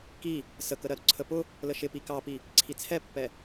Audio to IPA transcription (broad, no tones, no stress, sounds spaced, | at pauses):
k i | s ə k ə ɾ ɜ ɾ ʊ ǀʰ ə p ʊ | l ə ʃ ɪ p i k ɑ p i | ǀʰ i t͡sʰ ɛ pː ɛ